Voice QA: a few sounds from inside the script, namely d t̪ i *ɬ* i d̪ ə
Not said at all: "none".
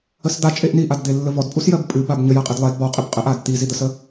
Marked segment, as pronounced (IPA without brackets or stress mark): z